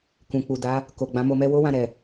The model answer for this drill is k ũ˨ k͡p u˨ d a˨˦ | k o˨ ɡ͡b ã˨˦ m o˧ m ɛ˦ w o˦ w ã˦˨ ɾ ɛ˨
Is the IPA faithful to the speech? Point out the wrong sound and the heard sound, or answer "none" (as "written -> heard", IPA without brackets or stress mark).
none